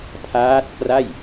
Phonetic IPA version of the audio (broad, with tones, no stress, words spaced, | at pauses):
pʰaː˦˥t̚kra˥˩j